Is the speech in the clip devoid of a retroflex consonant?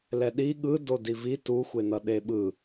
yes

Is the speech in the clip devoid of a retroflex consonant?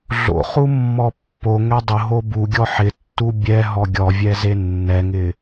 yes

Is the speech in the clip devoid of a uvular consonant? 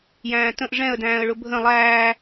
yes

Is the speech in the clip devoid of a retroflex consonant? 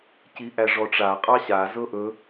no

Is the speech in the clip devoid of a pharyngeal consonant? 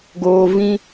yes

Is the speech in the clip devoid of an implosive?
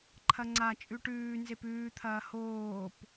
yes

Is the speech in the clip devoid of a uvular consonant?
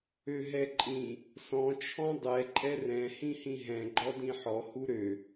yes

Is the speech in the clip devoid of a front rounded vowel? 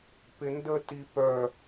no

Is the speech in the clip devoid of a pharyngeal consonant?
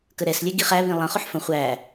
no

